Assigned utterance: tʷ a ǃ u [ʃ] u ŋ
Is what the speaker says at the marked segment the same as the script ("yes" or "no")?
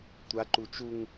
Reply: no